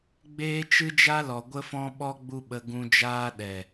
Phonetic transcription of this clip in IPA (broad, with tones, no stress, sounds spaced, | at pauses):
ɡ͡b eː˦ t͡ʃ ɨ˦ d͡ʒ a˦ l ɔ˨ ɡʷ ə˦ f ɔ̃˦ ɓ ɔ˦ ɡ͡b u˦ ɓ ə˧ ɡ ũ˧ d͡ʒ aː˦ ɗ ɛ˨